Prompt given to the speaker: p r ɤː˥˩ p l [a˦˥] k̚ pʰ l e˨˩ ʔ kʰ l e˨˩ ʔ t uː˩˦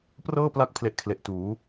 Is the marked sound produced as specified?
yes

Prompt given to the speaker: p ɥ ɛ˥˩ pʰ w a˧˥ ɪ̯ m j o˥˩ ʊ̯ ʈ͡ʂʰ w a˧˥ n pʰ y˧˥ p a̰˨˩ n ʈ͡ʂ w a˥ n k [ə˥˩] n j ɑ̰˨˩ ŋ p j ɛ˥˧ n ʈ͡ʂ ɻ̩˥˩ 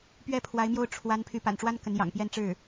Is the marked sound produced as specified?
no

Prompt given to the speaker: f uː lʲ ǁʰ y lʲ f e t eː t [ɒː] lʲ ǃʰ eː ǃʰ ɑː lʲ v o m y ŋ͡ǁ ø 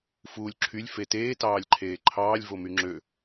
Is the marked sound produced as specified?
no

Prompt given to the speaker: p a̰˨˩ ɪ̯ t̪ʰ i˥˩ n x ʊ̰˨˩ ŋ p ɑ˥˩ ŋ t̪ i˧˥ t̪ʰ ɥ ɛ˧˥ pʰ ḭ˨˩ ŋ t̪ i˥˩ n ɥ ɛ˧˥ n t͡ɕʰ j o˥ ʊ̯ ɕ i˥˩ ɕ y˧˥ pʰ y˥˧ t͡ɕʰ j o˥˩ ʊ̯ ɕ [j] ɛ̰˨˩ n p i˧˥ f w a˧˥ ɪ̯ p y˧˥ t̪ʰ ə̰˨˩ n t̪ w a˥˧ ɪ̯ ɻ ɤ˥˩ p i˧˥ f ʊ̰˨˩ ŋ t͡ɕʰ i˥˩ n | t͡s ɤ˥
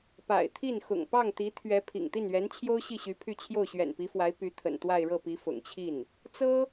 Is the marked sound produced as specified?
no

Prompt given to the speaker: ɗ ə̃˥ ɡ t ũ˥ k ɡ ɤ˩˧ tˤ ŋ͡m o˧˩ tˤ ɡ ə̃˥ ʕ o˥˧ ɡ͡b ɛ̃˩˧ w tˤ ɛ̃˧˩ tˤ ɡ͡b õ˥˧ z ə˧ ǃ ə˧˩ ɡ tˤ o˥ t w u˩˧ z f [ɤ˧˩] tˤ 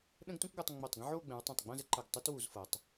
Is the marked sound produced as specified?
no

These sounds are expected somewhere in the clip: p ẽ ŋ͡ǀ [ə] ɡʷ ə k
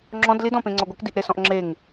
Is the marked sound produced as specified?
no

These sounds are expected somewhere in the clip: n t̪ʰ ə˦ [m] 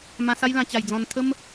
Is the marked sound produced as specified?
yes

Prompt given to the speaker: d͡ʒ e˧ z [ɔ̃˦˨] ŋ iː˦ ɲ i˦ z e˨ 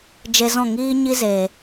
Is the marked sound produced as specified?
yes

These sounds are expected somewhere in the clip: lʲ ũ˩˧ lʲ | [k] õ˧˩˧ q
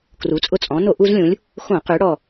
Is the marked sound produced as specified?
no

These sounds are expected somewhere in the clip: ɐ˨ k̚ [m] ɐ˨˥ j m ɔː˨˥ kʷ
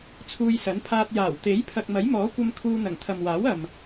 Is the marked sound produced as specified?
yes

